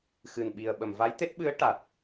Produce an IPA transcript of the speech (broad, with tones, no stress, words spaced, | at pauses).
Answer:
xɨ˨˩nɓi˨˩ə̯ ɓə˨˩˨mva˧˥jt̪e˦˥t̚ ɓɨ˧˥ə̯ ʈa˨˩t̚